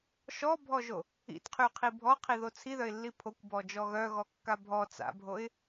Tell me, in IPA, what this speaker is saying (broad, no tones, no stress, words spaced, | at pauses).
ʃɔbʱɔʒo | ḭtqʰyqʰi bʱɔqʰiðo t͡sʰiðœɪ̯lːi pʰokʷbɔd͡ʒɔ ɣœɣɔkːa bʱɔ t͡sa̰bʱoɪ̯